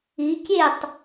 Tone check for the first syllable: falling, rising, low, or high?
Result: rising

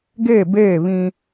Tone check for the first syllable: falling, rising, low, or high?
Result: falling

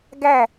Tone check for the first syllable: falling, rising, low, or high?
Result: falling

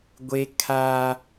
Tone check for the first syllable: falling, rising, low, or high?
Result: high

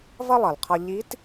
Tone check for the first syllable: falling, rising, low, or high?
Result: high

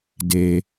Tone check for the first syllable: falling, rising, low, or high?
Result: low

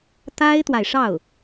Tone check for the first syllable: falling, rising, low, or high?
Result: high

